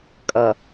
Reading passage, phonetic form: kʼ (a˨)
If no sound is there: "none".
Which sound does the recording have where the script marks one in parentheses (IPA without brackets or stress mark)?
ʌ˨